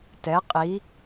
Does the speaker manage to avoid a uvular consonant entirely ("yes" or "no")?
no